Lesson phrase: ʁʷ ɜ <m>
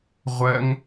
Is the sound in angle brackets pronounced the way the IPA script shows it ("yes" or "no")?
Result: no